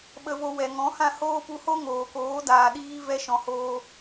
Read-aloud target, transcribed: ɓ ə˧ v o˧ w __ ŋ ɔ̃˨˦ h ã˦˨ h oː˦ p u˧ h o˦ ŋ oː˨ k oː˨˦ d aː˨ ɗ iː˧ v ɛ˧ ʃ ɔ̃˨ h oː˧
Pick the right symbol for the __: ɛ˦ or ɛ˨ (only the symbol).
ɛ˨